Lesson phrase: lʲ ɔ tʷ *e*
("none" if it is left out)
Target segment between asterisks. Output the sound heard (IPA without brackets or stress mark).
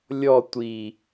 i